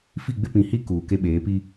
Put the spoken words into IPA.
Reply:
f i˦˨ ɡ͡b ɪ˦ p ĩ˨ h i˦ k uː˨ k e˦ ɓ eː˨˦ p i˦

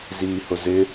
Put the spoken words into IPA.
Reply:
z iː h ʊ z ɪ

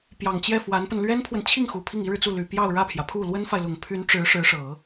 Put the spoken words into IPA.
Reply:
p j ɑ˨˩ ŋ t͡ɕ j ɛ˥˩ f w a˧˥ n p ə˧ n l ɥ ɛ˥ n pʰ w ə˨ n t͡ɕʰ i˥˩ ŋ x u˨˩ pʰ i˥˩ ŋ i˥ ɻ ɻ̩˨ t͡s u˥˩ l y˨˩ p j ɑ˥˧ ʊ̯ ɻ ä˥˩ pʰ j ä˩ pʰ u˥˩ l w ə˥ n f a˨ ɪ̯ l ʊ˨˩ ŋ pʰ y˧˥ n ʈ͡ʂ ɻ̩˧˥ ʂ ɻ̩˧˥ ʂ ɤ˨˩˦

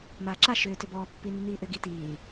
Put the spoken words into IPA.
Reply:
m aː ǁ a ʃ ʏː t ʏ b ɔː pː i nː iː ʔ ʏ ɡ i t iː

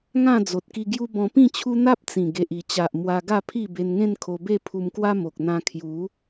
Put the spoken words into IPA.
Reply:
ŋ ã˥˧ d͡z o˨ t̚ k i˧ ɡ j u˦ b ɔ̃˧ p ĩ˥˧ t͡ɕʰ u˦ n̪ a˦ p̚ t͡s ĩ˨˩ ɡ e˨ ʔ i˨˩ t͡ɕ a˨ ʔ m w a˧ ɡ a˥˧ pʰ i˥˧ b e˧ n ŋ ẽ˥˧ n kʰ o˧ b e˥˧ pʰ u˧ m k w a˦ m o˨ k̚ n̪ ã˧ kʰ j u˨˦

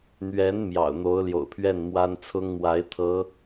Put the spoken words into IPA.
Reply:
n̪ ɥ ɛ˧˥ n m j ɑ̰˨˩ ʊ̯ n̪ o˧˥ ʊ̯ l j o̰˨˩ ʊ̯ pʰ ɥ ɛ˥˩ n m w a˥ n t͡sʰ ʊ˥ ŋ m w a˧˥ ɪ̯ t̪ʰ ɤ˧˥

